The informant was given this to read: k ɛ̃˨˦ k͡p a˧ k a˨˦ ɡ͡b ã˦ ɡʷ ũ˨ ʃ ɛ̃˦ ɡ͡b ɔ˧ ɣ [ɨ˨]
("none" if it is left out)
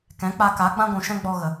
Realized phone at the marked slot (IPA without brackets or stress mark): ə˨